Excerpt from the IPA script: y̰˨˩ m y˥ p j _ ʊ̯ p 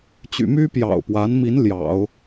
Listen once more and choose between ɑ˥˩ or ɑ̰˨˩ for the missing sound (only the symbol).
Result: ɑ̰˨˩